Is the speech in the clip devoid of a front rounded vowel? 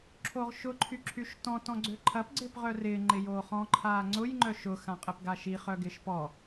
no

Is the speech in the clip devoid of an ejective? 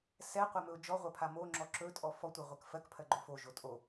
no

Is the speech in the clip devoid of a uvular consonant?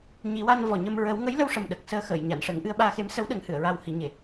yes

